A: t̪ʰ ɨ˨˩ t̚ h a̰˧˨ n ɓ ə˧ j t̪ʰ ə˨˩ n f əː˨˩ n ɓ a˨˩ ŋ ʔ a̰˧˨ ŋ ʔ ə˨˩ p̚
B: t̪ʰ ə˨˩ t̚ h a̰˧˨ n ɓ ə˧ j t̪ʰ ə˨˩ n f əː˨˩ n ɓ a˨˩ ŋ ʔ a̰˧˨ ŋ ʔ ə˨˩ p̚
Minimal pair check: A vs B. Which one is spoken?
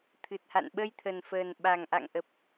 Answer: A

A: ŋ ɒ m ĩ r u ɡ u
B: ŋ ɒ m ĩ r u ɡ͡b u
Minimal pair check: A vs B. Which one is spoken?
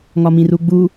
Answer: B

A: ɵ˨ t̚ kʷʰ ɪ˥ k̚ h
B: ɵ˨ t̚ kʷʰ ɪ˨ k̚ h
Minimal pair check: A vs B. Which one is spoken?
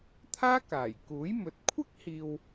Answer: A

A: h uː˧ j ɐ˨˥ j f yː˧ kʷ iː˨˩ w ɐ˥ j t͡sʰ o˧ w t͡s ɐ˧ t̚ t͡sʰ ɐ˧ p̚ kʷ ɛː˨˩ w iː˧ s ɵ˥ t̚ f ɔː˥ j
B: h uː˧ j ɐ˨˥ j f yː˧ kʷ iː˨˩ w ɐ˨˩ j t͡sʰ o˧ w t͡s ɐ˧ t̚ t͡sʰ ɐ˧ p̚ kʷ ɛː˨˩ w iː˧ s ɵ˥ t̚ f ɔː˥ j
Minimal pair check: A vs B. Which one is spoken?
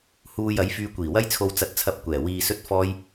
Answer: A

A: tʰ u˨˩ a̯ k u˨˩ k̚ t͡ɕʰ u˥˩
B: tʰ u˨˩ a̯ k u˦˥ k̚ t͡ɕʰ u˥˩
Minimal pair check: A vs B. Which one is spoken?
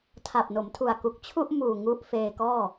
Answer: A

